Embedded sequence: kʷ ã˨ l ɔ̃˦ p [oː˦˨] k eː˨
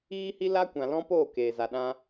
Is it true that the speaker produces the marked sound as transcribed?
yes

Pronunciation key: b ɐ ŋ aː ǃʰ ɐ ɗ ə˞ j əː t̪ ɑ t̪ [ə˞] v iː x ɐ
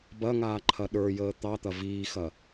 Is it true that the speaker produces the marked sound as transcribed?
no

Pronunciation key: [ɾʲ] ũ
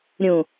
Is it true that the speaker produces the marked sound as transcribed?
yes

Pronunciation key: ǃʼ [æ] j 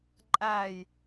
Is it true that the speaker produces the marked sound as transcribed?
yes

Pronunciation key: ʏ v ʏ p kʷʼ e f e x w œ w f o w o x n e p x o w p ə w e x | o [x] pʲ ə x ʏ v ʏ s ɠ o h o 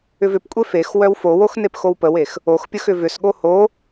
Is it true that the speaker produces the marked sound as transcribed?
yes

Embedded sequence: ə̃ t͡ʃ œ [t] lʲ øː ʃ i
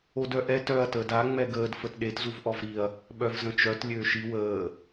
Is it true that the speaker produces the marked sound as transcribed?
yes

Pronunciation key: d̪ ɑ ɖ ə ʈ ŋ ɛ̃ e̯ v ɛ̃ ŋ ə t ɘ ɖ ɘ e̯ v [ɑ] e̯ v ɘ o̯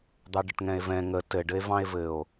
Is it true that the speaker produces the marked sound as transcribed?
no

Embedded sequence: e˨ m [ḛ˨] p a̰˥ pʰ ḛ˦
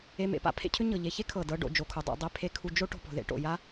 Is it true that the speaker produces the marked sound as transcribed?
yes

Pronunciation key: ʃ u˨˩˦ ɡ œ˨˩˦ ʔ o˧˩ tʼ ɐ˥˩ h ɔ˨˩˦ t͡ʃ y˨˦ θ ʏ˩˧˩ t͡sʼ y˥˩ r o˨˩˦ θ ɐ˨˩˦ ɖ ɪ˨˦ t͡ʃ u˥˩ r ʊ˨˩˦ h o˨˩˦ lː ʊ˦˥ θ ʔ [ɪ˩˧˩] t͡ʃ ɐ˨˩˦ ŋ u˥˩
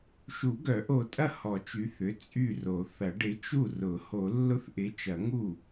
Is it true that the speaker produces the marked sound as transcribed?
no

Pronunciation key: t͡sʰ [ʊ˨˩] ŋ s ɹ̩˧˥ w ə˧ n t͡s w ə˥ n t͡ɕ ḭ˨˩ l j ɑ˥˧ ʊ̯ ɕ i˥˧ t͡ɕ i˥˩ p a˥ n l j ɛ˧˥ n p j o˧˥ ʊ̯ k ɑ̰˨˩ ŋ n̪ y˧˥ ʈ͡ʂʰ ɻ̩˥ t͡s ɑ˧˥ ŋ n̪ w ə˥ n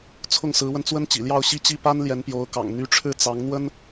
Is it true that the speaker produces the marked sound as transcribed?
no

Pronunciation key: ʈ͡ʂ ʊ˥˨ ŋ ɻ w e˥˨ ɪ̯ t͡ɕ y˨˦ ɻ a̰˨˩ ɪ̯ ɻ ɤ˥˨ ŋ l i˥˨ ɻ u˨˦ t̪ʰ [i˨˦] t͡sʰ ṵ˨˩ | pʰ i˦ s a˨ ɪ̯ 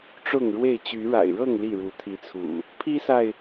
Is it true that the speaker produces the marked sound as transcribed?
yes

